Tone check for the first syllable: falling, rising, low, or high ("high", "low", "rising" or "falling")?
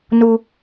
high